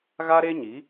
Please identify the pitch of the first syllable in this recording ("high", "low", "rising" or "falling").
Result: high